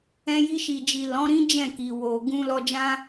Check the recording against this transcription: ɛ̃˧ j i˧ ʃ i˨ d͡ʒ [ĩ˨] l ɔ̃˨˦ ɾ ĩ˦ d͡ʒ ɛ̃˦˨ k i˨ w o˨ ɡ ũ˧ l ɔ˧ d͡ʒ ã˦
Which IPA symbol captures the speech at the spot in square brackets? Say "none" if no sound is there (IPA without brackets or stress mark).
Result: i˨